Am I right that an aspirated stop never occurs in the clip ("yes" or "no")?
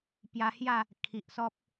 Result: no